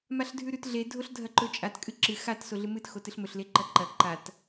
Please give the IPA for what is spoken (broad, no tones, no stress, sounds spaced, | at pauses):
m a ɬ dʱ ʉ ɾ ʉ t ɮ e dʱ o ɬ dʱ ɐ ǃ ɵ t͡ʃʼ a t kʼ ɨ ǁ ɨ x a t s o ɮ ɨ m ɨ t x o t ɨ ɬ m ɵ ɬ l e ǃ ɐ ǃ ɐ ǃ a t